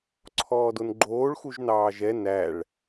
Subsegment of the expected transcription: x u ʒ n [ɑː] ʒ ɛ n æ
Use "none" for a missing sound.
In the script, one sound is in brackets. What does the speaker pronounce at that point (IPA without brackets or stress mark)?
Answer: ɑː